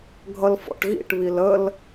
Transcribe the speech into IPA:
ɡʱ ʌ l f ɔ̰ ʈ ɣ ḭ ʈ β i l ə l

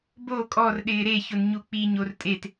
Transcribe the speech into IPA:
b o kʼ ɔ r ɗ ɪː ɾ e ç ʊ n ɲ u k͡p i ɲ o r tʼ e t

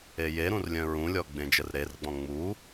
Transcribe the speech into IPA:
e j e ɾ ũ r lʲ œ̃ ɹ ũ lʲ ɔ ɡ͡b ẽ d͡ʒ ə r ɾ e r ɡ͡b ɔ̃ ŋ͡m u

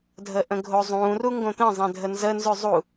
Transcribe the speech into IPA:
dʱ ə ʔ ə̃ ɡʱ o zˤ ũː r u ŋ ɡ õ t̪ ə̃ zˤ ɛ̃ dʱ ə n z ə n z ʉ zˤ u

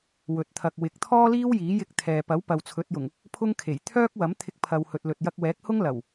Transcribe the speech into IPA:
w ɵ˨ t̚ t̪ʰ ɐ˨ k̚ w ɪ˨˥ k̚ t̪ʰ ɔː˥ l iː˥ w j iː˨˥ j ɪ˧ k̚ t̪ʰ ɛː˨ p ɐ˨˥ w p ɐ˨ w t͡sʰ ɵ˨˥ t̚ j ʊ˨˩ ŋ | pʰ ʊ˥ ŋ kʰ e˨˩ j t̪ʰ œː˥ k̚ w ɐ˨˥ m t̪ʰ ɪ˧ k̚ pʰ ɐ˨ w h ɵ˨ t̚ l ɵ˨ t̚ j ɐ˧ k̚ w ɛː˨˥ k̚ h ʊ˥ ŋ l ɐ˨˩ w

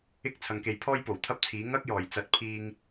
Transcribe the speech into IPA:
ɪ˥ k̚ t͡sʰ ɐ˨ ŋ k e˨˧ j pʰ ɔː˥ j p o˨˩ w t̪ʰ ɐ˥ p̚ t͡sʰ iː˨˥ ŋ ɐ˥ k̚ j ɔː˨˩ j t͡s ɐ˨˥ t̚ pʰ iː˥ ŋ

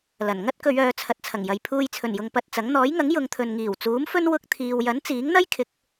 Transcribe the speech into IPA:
l ɐ˨˩ n ŋ ɐ˥ t̚ k ɵ˨˧ ɥ œː˨˧ t͡sʰ ɐ˨ t̚ t͡sʰ ɐ˨˩ ŋ j ɐ˨ j pʰ uː˧ j t͡sʰ ɵ˨˩ n j ʊ˨ ŋ p ɐ˧ t̚ t͡s ɐ˨˥ ŋ n̪ ɔː˨˥ j ŋ ɐ˨˥ ŋ j ʊ˨˧ ŋ t̪ʰ ɵ˨ n ŋ iː˨˩ w t͡s uː˨˥ m f ɵ˥ n w ʊ˧ k̚ t̪ʰ iː˨ w j ɐ˨˥ n t͡s iː˨˥ ŋ n̪ ɐ˥ j kʰ ɪ˨˥ k̚

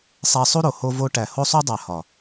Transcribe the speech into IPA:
sˤ æ˧ sˤ u˦ ɾ o˨ h o˧ v o˧ ʈ æ˨ h o˧ sˤ u˧ dˤ æ˨ h ɒ˨

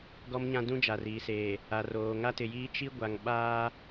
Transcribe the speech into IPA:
ɡ ɔ˦ m ɲ ã˦ d ũ˦ d͡ʒ a˨ r iː˨ s eː˨ | a˨ r oː˨ ŋ a˦ t ɪ˨ j iː˦ t͡ʃ i˦ ɡʷ a˨ ŋ ɓ aː˦

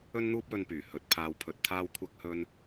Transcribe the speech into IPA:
ɵ˥ n n̪ uː˥ p̚ w ɵ˧ n p yː˨˩ h ɵ˨˥ t̚ pʰ aː˧ w pʰ ɵ˧ t̚ t̪ʰ aː˥ w kʷʰ ɐ˥ k̚ h ɵ˥ n

